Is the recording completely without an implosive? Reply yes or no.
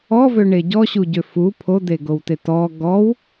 yes